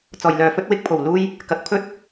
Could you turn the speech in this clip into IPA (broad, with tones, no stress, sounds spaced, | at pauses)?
t͡s ɔː˨˩ j l œː˨˧ f ɵ˥ t̚ w ɪ˥ k̚ pʰ o˨˩ w l uː˥ j | k ɐ˨˥ k̚ pʰ ɵ˥ t̚